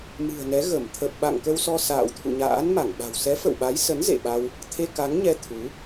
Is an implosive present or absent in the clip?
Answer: present